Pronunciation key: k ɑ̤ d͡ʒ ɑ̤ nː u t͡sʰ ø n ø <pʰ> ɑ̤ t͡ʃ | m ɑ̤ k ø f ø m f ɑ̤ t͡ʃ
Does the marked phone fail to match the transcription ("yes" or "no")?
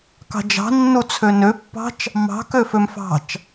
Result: yes